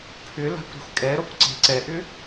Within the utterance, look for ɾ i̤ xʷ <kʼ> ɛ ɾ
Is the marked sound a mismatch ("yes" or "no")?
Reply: no